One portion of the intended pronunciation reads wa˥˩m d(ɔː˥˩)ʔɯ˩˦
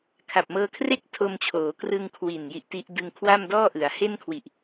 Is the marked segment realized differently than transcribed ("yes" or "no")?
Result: no